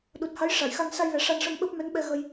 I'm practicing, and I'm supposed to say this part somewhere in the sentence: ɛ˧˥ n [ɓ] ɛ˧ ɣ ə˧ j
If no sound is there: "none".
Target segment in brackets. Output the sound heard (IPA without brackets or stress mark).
ɓ